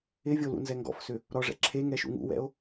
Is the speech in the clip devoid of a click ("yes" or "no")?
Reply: no